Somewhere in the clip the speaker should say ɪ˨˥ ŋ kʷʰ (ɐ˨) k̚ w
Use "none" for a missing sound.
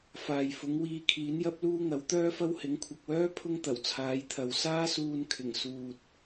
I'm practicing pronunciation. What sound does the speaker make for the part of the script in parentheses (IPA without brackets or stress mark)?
ɐ˨